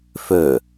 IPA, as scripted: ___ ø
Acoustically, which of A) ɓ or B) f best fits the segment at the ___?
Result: B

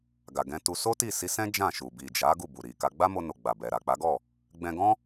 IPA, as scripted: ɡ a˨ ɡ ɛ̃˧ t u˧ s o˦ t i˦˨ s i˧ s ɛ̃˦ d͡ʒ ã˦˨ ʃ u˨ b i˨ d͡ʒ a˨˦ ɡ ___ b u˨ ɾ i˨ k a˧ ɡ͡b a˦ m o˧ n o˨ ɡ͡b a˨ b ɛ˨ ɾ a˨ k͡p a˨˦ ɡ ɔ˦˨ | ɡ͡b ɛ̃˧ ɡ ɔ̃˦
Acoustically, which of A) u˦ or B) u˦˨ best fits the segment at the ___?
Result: B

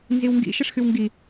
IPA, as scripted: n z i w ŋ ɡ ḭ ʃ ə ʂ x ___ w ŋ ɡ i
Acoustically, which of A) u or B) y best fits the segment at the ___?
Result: B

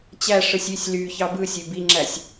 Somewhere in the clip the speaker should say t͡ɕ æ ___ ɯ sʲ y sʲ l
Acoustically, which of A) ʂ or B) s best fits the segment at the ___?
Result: A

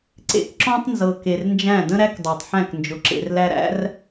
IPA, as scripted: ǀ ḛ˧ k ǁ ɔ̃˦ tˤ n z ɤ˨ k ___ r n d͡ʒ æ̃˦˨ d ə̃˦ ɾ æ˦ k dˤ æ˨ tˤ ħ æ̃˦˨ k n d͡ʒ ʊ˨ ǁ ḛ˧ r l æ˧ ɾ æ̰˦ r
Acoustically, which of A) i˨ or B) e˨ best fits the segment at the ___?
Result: B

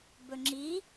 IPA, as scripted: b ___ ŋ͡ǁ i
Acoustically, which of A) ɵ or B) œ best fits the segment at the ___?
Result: A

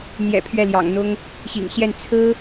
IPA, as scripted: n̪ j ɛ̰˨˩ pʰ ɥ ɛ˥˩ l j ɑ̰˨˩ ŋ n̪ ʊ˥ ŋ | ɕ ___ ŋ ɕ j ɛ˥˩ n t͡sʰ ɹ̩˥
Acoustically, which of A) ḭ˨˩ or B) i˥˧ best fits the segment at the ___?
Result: A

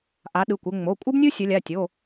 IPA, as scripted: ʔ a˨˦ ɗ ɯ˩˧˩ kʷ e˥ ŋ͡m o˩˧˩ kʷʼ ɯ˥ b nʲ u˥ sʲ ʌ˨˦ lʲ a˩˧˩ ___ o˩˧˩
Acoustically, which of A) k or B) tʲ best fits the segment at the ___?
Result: B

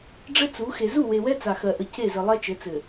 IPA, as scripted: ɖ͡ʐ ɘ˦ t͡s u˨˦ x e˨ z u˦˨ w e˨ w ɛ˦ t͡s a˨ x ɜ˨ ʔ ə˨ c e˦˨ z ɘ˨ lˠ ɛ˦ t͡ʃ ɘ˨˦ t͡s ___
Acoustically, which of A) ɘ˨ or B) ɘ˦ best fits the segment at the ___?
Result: A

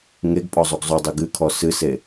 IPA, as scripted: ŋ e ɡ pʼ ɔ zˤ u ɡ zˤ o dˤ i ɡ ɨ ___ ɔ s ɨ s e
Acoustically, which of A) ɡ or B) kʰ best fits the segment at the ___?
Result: B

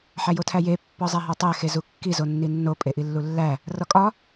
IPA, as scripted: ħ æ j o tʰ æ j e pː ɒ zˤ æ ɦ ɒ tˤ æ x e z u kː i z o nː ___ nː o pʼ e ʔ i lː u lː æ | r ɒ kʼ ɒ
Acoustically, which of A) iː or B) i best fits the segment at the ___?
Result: B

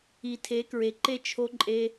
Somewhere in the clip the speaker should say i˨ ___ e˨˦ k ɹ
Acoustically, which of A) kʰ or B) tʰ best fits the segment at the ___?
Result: B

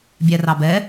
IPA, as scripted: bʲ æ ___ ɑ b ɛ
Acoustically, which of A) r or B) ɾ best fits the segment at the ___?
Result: A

